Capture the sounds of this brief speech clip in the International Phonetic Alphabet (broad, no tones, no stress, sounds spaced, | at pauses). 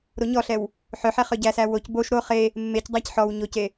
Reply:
ɾ o ɲ ɔ ɬ ɛ w | ħ œ ħ ɛ χ œ ɟ æ s æ w o c b o ʃ ɾ o χ e | mː e c dˤ æ c ħ ɔ w ɲ o c e